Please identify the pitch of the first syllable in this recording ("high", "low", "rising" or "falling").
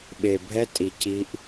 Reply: low